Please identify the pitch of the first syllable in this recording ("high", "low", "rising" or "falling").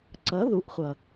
rising